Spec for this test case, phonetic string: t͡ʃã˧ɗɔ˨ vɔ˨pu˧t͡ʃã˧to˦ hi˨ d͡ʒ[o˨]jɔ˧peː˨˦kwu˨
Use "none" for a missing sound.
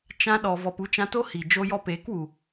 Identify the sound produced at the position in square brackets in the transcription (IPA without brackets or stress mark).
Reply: o˧